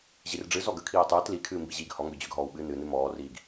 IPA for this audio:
ʑirɖ͡ʐɨ zɔɡə kʰiːtˤɨːt likʰɨː mbiʑiːɡhɔ ŋɡød͡ʑøɡ ɦɔːwɓɨːnɨnɨ mɔːriːɡ

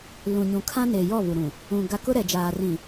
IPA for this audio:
lũ˨ɲũ˨kʰã˦ne˨ jɔ˦˨βu˨ɾũ˨ | ũ˨ ɡa˦ kʊ˦ɾɛ˨d͡ʒaː˨ rĩ˨

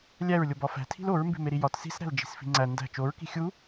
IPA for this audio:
lʲæɹlʲob ɒfæ̤tʰi̤l oɹmbi̤meɾi jɒt si̤sɾæ̤l d͡ʒi̤sfi̤ŋ͡ǀæ ndæ̤ t͡ʃoɹki̤ xʲu

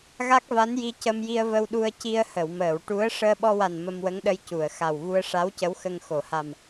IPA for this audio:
ɣa˦˥k̚va˧˥nji˧ cə˧mji˧ə̯və˧wɗu˧ə̯ ci˧ə̯hə˨˩˨wməː˨˩˨w ʈu˧˥ə̯ ʂəː˧ɓɔ˧wa˨˩n mə˧mwə˧˥ŋɗə˧j cu˨˩˨ə̯ xa˨˩wvu˧ə̯ ʂa˧˥wcə˧˥wxə˧ŋ xo˨˩˨ha˨˩m

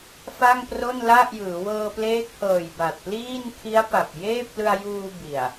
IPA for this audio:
fa˥˩ŋpro˥˩nla˥˩ʔjɯː˩˦ wɤː˧pleː˦˥k̚hɤː˨˩j ba˨˩t̚pliː˥˩n kʰi˦˥a̯pa˨˩p̚jeː˥˩p̚ lɯ˧a̯juː˧ bi˨˩a̯

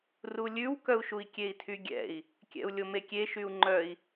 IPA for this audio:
rulʲʉwkœu̯ʃui̯ kʲei̯tʰyɡʲɛ̰i̯ | kʲɛ̰u̯lʲomekʲe ʃyu̯ŋ͡ǃœi̯

